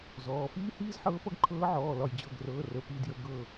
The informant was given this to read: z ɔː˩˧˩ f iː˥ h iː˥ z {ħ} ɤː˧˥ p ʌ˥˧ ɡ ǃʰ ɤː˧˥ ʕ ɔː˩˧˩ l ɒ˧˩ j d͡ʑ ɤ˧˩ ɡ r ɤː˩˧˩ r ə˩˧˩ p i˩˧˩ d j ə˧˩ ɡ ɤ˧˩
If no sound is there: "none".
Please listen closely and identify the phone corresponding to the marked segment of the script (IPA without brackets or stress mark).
ħ